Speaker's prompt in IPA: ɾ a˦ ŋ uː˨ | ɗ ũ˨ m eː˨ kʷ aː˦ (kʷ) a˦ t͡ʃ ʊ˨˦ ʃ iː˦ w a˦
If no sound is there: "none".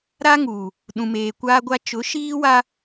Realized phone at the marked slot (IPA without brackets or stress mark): ɡʷ